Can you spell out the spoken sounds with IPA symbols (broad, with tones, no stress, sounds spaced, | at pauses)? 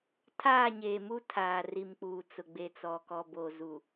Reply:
tʰ aː˦˨ ɲ eː˨ m u˦ tʰ aː˨ r i˨ m k͡p uː˨ t͡s ʊ˨ ɡ͡b e˨ t͡s ɔ˨ k ɔ˨ b o˨ z u˨